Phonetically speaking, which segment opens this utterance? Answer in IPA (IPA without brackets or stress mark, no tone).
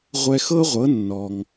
ʁʷ